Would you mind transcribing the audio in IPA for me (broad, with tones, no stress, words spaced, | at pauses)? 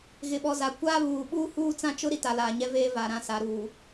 ɣɪ˨ɓɔ˨za˨ kʷaː˦βuː˨ ɓuː˦huː˦t͡sã˦t͡ʃʊ˦ ɾi˦ta˨laː˨ɲɛ˦ veː˦va˨ɾã˦ sa˨ɾuː˨